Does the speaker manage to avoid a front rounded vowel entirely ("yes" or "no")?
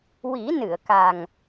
yes